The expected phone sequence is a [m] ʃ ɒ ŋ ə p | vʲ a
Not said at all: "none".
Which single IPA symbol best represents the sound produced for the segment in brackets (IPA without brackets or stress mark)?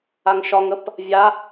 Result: ŋ